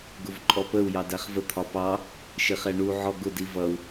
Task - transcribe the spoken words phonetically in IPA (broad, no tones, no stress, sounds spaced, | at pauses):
ɡ ʊ v ǃʼ ɔ p ə u̯ j ɑ d æ χ v ə t̪ʰ ɒ p ɑ | ʃ ɪ χ ɛ ɳ u ʕ ɔ ɡ ʊ d i v ʌ u̯